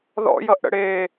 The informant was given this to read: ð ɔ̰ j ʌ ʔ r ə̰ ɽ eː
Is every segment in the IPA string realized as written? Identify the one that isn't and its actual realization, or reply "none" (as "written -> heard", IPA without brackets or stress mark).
r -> ɽ